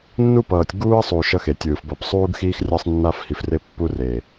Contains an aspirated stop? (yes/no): no